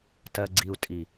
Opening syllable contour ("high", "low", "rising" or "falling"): low